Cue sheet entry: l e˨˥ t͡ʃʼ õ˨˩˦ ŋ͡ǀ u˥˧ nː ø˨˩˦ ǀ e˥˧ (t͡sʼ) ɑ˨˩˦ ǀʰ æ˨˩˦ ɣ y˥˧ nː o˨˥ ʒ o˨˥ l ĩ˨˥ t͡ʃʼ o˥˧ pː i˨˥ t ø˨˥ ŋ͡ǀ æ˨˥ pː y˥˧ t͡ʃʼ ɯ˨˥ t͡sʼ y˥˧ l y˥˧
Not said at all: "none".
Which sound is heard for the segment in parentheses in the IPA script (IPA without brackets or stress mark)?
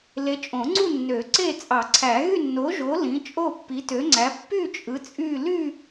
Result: t͡sʼ